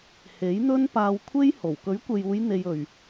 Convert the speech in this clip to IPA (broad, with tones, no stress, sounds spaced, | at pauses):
h e˨˥ j n̪ ɵ˥ n p aː˧ w kʷʰ e˥ j h o˨˩ w k ɵ˨˥ ɥ kʷ e˨ j uː˨˧ j n̪ e˧ j ɵ˨ ɥ